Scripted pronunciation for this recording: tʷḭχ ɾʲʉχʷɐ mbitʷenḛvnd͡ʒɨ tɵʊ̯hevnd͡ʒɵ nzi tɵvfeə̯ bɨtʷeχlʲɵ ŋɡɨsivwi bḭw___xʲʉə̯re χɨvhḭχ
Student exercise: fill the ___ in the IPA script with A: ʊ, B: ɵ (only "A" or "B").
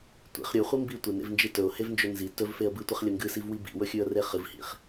B